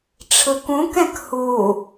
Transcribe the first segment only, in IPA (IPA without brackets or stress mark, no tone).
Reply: ʈ͡ʂʰ